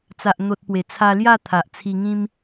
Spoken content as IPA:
t͡s a˨ ʔ n̪ o˨ t̚ p w e˨˩ t͡sʰ a˧ l j a˥˧ t̪ʰ a˨ ʔ t͡sʰ i˧ ŋ ĩ˦ m

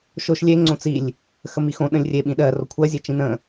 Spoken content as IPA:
ʃ o ʃ lʲ e ŋ͡ǀ õ t͡s i lʲ | x ə m i x õ ɗ ə̃ lʲ rʲ e ɓ ĩ ɗ ɜ r o kʷʰ ɜ zʲ e t͡ʃ ĩ n ə̃

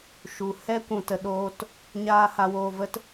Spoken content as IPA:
ʃ u˨ h ɛ˦ kʷ ũ˨ t ə˨ ɗ oː˧ t | ɲ aː˦ h a˧ w oː˧ v ə˧ t

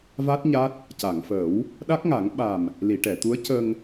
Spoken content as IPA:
v a˦˥ t̚ ɲ a˦˥ t̚ | c a˨˩˨ ŋ f əː˨˩˦ w | ɗ a˦˥ k̚ ŋ a˨˩˦ ŋ ɓ a˨˩ m | l i˨˩˨ ʈ ɛ˨˩˨ t̪ u˧˥ ə̯ c ə˧ ŋ

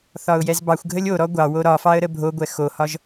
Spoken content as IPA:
θ ɒ ʊ̯ j ɛ z b ɑ xʷ ɡʱ ə lʲ o ɾ ɔ ɡʷ ɑ w o ɾ ɒ f ɑ ə̯ ɾ ə bʱ o ɡʷ ɛ x o h ɒ ʒ

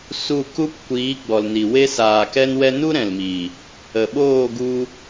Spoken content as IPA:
s u˦˨ k u˦ p kʷ iː˨˦ ɡ͡b ɔ˨ l n i˨ w e˧ s aː˨ k ɛ˧ n w ɛ˧ n u˦ ɾ ɛ̃˨ l m iː˨ | ə˨ ɓ oː˦˨ ɡ u˧

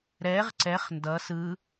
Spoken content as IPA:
ɾ ɛ ʁ ǀ ɛ χ n d ʌ s ɯ

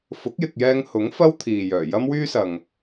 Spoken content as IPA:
f ʊ˨˥ k̚ j ɪ˨ k̚ j ɛː˧ ŋ h ʊ˨˥ ŋ f ɐ˥ w t̪ʰ iː˨ j œː˨˩ j ɐ˥ m w yː˥ s ɐ˨ ŋ

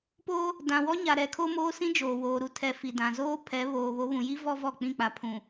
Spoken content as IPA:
p oː˦ | d ã˨ w ɔ˦ ɲ a˨ ɾ ɛ˨˦ kʰ o˦ m oː˦ s ĩ˦ d͡ʒ oː˨ w oː˨ ɾ u˨ tʰ ɛ˨ f i˨ d ã˨ z oː˦ pʰ ɛ˨˦ β oː˨ β o˨˦ β ũ˨ j i˦ v ɔ˦ v ɔ˦˨ k͡p ĩ˦˨ k͡p a˨ pʰ ũ˨

